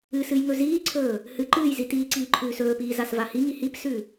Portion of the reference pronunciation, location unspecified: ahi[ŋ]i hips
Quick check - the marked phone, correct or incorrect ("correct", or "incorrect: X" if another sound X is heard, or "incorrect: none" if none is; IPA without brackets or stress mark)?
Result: correct